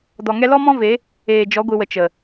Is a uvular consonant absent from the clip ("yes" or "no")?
yes